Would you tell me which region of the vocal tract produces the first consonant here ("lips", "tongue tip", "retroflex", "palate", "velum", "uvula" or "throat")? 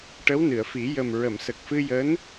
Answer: retroflex